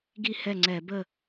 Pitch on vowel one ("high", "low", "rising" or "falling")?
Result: falling